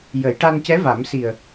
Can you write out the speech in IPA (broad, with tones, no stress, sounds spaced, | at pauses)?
j ə˨˩˦ j ʈ a˧ n c ɛ˧˥ v a˨˩˦ m s i˨˩ ə̯